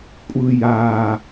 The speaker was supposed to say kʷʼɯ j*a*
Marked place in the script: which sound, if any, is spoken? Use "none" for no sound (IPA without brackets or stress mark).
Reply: a